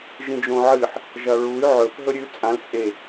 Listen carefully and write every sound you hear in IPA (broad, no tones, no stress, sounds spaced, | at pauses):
ʒ ĩ d͡ʒ õ ʕ ɨ ħ | ʒ ɐ ɹ u y̯ ʕ ɵ f ɦ ɵ ɾʲ ʉ t͡sʼ ã l t͡sʼ e